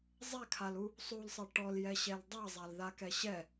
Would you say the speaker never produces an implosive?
yes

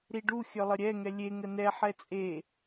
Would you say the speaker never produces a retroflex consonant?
no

